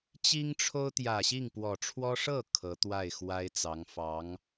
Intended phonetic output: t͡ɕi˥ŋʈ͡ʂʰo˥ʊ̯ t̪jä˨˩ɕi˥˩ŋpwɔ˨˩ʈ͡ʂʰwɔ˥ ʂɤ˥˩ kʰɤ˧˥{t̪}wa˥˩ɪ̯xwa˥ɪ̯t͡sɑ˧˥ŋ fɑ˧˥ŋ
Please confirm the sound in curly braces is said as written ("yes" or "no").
yes